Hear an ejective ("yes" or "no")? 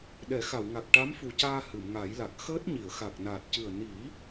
no